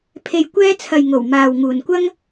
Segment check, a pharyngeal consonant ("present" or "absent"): absent